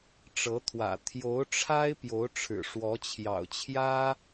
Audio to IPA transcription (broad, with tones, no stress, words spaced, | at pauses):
ʈ͡ʂɤ˧˥t̪ʰwä̰˨˩ t̪ʰjo˧˥ʊ̯ʈ͡ʂʰa˥ɪ̯ pjo˧˥ʊ̯ʈ͡ʂʰɻ̩˨˩ ʂwɔ˧˥t͡ɕʰjɑ̰˨˩ʊ̯t͡ɕʰjä˥